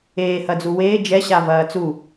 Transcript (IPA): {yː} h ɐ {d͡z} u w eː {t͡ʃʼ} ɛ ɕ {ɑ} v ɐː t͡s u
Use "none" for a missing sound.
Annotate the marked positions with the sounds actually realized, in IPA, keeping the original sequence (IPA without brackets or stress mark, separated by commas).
eː, d͡z, d͡ʒ, a